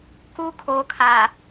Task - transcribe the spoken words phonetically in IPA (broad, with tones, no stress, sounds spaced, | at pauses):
k u˦ kʰ oː˨ kʰ a˨